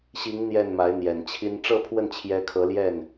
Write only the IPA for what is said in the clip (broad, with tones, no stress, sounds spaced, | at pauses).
ɕ i˧˥ ŋ n̪ j ɛ˥˩ n m a˧˥ ɪ̯ n̪ j ɛ˨˩ n t͡ɕʰ i˥ n ʈ͡ʂ ɤ˥˧ pʰ w ə˥˩ n t͡ɕʰ j ɛ˧˥ kʰ ɤ˧˥ l j ɛ˥˩ n